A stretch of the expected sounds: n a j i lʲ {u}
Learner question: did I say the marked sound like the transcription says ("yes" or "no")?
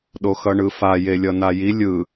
no